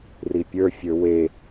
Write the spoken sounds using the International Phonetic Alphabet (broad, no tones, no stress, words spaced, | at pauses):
ripʲə˞ fʲə˞we